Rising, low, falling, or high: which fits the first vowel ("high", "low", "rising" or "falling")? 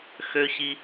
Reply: high